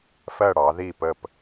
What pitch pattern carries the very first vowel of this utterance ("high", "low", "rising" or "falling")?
falling